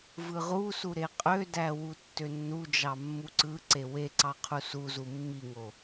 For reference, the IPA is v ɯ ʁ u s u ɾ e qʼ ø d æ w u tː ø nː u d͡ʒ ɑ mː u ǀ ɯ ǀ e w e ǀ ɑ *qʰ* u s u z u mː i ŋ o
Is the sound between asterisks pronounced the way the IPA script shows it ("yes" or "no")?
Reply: yes